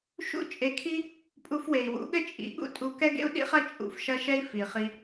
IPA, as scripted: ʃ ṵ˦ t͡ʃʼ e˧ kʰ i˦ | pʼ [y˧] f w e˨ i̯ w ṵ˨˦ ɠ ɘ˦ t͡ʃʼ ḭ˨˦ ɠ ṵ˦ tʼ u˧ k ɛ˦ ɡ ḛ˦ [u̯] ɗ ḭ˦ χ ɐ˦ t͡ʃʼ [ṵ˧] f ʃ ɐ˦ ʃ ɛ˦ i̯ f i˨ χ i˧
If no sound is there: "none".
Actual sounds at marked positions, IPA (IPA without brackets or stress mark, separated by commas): u˧, u̯, ṵ˧